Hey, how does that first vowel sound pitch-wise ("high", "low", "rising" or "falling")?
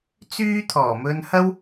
high